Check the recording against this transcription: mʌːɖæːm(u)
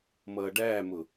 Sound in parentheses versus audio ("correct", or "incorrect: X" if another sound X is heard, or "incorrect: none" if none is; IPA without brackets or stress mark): incorrect: ʊ